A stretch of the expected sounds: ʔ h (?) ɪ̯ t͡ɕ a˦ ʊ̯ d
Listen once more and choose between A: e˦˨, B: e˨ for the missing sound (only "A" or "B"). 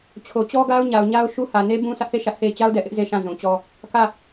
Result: A